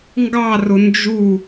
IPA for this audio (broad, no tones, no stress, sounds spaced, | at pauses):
ŋ ɡ ɑ r ʊ n d͡ʒ u